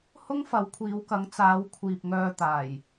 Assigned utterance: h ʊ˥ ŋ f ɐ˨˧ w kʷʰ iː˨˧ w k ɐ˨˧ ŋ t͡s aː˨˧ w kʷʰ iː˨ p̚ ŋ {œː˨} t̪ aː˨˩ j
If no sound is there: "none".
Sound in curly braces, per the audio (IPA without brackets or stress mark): œː˧